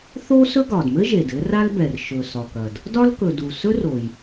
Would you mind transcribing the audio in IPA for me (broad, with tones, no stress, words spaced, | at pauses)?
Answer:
θo˥sɵ˥ ɡɒ˩dmɘ˥ʒe˩d ɘ˥ra˥lbɛ˩r ʃɵ˩ sɒ˩kɐ˩d | dɒ˥lkɵ˩ du˩sɵ˥r o˩j